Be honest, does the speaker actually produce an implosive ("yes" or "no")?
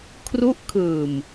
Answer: no